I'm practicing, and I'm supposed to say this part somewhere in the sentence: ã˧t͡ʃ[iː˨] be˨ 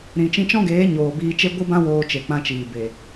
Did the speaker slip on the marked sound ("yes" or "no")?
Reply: no